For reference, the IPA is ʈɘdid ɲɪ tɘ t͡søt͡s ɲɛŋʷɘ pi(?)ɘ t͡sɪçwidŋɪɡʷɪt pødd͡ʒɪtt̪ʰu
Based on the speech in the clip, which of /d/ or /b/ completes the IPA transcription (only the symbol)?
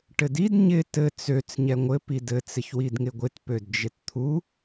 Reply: d